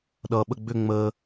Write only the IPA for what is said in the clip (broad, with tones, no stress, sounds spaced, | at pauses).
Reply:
ɗ ʌː˩ ɓ ə˧˩ ɡ͡b ʏ˧˩ ŋ͡m əː˩